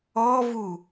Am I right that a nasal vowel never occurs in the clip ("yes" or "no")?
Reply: yes